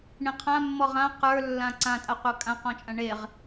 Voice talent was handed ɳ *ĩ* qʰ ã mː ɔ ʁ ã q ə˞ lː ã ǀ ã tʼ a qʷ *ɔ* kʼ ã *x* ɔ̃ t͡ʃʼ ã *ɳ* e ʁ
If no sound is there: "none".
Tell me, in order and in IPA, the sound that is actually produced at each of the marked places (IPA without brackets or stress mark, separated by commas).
ĩ, ʌ, q, ɳ